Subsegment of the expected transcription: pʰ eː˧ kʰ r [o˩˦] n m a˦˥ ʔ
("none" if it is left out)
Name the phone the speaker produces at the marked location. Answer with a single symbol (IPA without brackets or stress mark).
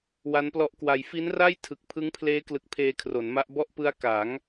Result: o˩˦